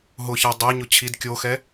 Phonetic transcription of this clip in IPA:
ɦ ʊ ç ɛ dˤ ɛ ɲ ʊ t͡ɕʰ i d kʲ o x ɛ

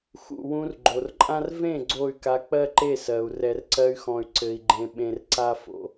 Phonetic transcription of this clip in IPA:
x ṵ˨ w ũ˧ r ɡ͡ǃ o˨ r ǃʼ ã˦ r v ẽ˦˨ ɡ͡ǀ o˦˨ y̯ k a˧ k͡p ɜ˦ ǃ e˦˨ s ɜ˨ u̯ r ɛ˨ r ǀ ɜ˧ y̯ x ɔ̃˨ y̯ ǀ ɘ˨ i̯ ɡ͡ǃ ẽ˨ ɓ ẽ˨ r ǀ a˦ f o̰˧

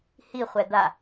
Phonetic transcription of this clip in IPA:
h i χʷ ɛ d̪ a

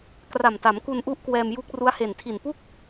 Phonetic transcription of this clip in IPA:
k r a˨˩ m t a˩˦ m k u˧ n ʔ u˦˥ ʔ k w ɛː˧ m j u˦˥ k̚ r u˦˥ a̯ h e˨˩ n tʰ i˨˩ n p u˥˩ k̚

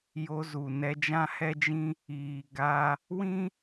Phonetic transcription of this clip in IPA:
j o˧ z u˨ n ɛ˧ d͡ʒ ã˦ h ɛ˦ d͡ʒ ĩ˦ | iː˨ ɡ a˧ | w ĩ˦

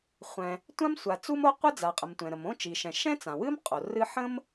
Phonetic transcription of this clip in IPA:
χʷ ɛ̃˩ | tʷ ã˥ m sʷ a˩ t͡s u˥ m o˥ qʷ ɨ˥ d͡z a˩ qʼ ə˩ m tʷ ɛ̃˩ ɾ ə˩ m õ˥ t͡ʃ i˩ ʃ ɛ̃˩ ʃ ɛ̃˥ t͡s ã˩ w ɨ˥ m qʼ o˩ r ɨ˥ ħ ə̃˥ m

